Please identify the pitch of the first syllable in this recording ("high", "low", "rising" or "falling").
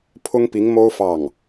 high